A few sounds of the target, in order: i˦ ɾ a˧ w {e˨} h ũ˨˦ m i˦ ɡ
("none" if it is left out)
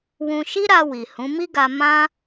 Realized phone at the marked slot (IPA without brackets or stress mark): i˨